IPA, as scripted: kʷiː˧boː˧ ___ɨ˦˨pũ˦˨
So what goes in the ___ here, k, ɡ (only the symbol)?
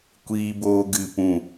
ɡ